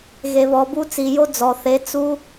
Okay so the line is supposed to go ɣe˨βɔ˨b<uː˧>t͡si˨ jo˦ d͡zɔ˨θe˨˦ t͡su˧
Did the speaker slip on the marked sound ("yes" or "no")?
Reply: yes